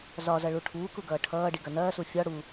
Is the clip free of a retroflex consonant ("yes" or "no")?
no